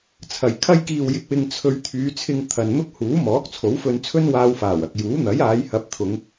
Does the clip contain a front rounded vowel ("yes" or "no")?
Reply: yes